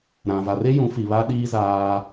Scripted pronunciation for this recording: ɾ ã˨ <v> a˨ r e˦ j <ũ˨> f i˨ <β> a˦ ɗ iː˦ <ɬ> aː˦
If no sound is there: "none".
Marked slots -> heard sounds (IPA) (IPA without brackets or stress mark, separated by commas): v, ũ˨˦, β, z